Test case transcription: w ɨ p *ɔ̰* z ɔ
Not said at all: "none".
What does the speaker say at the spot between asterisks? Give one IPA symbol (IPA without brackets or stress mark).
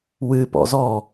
ɔ̰